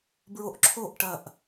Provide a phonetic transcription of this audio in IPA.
b ɹ o ʔ ǁʰ o ʔ ʈ ɐ ʔ

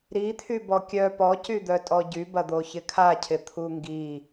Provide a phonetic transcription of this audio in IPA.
ɾ i t̪ʰ y b ɔ kʲ œ p ɔ c y d̪ œ tʼ ɔ ɟ y b ɐ d̪ o ç ɪ kʰ a cʰ ɪ t̪ʰ u ŋ ɡ i

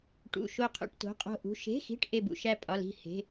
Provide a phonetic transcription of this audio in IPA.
ʈ ṵ˧˥˧ ʃ o˥˧ qʰ ṵ˧˥˧ ʈ t o̤˧˥˧ qʼ o̤˥˧ ʔ ṳ˧˥˧ ʃ e̤˧˥˧ x i̤˧˥˧ ʈ ʔ e˥˧ b ṵ˧˥˧ ʃ æ˥˧ pʼ ɒ˧˥˧ l i̤˥˧ h e̤˧˥˧

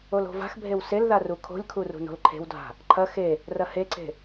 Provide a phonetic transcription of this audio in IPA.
o l o̤ v a̤ x bʱ e w s e l ð a r u kʰ o̤ lʲ kʰ u r ṳ n o̤ l ǃʰ e̤ w dʱ a̤ | ǃʰ ɐ x e | r ɐ h e ǀ e̤

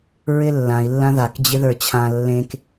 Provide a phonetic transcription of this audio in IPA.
ɹ ɪ lː ã i̯ lː ã ð a k d͡ʑ ɪ ð ə˞ t͡ɕʰ ã lː ẽ k

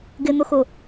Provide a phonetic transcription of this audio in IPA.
ɡ ɪ n̪ ʊ x ʊ

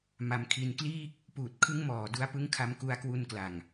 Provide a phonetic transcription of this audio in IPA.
m a˧ m kʰ i˧ n k l iː˥˩ k̚ | p uː˨˩ t̚ kʰ ɯ˦˥ ŋ m ɔː˨˩ d u˧ a̯ p ɯ˦˥ ŋ kʰ a˧ m k u˧ a̯ k w u˧ n k l a˨˩ ŋ

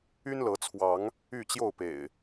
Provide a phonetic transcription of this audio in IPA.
y˦ n l ɤ˨˦ t͡sʰ w ɑ˨˦ ŋ | y˥˨ t͡ɕ j o˥˨ ʊ̯ p ḛ˨˩ ɪ̯

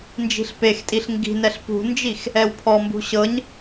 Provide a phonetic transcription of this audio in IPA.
n d͡ʒ i̤ ɬ p e x tʼ i ɬ ŋ ɡ i̤ n ɛ ɬ p ṳ n d͡ʒ i x | ɛ w pʰ ɔ m b ṳ ɕ ɤ ɲ

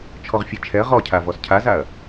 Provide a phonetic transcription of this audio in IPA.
t͡ʃʰ ɔ ʁ fʲ e t͡ʃʰ ɛ ɐ̯ ʁ ɔ cʰ a v ɔ s cʰ a z a ɐ̯

